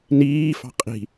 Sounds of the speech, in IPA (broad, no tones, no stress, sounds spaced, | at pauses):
n iː f ɑ̤ qʼ i̤